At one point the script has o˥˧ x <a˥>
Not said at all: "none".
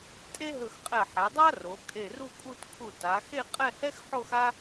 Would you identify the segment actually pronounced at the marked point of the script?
a˥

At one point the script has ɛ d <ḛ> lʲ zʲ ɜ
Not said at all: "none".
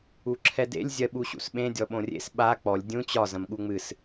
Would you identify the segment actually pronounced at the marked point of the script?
ḛ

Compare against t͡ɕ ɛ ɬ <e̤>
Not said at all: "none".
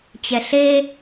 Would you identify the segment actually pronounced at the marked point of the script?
e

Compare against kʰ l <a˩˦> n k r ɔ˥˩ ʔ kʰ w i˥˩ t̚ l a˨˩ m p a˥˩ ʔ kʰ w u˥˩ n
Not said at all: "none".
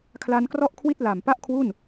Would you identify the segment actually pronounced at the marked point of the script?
a˦˥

